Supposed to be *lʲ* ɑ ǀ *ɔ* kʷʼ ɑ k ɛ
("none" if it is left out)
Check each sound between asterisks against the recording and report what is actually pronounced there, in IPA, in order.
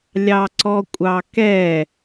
lʲ, ɔ

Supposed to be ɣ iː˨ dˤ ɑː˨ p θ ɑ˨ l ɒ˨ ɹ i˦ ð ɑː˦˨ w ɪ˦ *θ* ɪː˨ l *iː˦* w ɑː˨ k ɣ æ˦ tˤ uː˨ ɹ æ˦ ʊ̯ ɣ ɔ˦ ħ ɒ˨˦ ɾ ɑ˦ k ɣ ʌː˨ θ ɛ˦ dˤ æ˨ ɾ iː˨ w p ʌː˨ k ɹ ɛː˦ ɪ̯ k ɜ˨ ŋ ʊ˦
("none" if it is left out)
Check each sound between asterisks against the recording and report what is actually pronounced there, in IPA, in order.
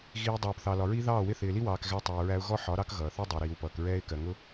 θ, i˦

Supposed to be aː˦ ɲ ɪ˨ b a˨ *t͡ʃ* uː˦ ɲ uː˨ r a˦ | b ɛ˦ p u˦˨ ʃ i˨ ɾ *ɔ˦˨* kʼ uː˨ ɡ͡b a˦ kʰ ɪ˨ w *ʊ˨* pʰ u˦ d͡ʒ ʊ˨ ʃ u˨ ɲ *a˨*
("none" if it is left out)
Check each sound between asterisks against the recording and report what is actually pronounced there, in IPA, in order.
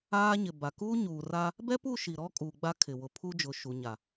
k, ɔ˦, ʊ˨, a˨

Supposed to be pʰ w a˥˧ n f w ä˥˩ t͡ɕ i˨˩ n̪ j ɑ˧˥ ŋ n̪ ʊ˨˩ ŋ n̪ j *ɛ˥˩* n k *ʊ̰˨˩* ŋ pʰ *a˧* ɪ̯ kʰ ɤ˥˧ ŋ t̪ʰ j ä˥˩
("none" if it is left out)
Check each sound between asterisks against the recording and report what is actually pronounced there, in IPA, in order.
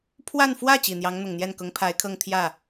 ɛ˥˩, ʊ˧˥, a˧˥

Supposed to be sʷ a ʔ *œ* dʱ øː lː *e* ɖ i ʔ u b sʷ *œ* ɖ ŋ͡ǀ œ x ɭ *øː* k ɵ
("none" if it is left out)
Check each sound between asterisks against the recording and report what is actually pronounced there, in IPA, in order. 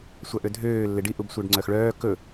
ø, e, œ, œː

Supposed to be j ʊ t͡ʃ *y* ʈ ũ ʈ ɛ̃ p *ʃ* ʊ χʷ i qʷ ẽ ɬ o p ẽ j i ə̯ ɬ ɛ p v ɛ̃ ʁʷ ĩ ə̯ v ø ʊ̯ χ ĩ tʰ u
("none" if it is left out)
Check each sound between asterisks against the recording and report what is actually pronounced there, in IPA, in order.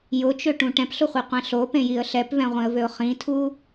ø, ɬ

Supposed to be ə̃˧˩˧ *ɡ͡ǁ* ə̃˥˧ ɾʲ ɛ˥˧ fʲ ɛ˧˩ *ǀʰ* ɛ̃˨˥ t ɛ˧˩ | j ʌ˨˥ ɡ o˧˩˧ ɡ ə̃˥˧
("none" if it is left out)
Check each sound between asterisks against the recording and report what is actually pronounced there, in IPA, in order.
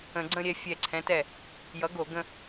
ɡ͡ǀ, ǀʰ

